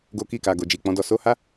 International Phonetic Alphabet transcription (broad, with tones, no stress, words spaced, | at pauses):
ɡo˧ki˧ka˨ ɡo˨d͡ʒi˨k͡pɔ̃˨˦dɔ˦˨ so˨˦ha˦